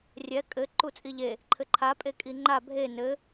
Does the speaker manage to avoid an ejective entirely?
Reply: no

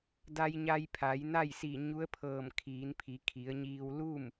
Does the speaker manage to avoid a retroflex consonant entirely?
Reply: yes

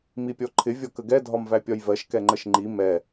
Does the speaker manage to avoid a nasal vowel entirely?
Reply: yes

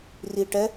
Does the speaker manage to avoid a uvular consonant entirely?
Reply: yes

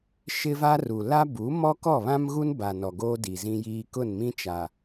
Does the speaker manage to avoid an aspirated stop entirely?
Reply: yes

